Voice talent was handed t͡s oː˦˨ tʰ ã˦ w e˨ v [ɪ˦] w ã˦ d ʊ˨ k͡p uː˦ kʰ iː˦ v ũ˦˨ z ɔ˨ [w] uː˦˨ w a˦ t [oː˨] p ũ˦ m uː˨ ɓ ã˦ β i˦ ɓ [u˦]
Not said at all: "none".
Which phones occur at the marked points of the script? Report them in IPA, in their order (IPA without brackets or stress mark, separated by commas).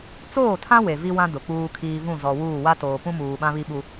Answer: i˦, w, oː˨, u˦